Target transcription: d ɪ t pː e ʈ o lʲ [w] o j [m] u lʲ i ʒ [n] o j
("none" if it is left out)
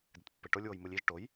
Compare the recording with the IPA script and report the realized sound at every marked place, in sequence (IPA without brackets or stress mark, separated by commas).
w, m, ʈ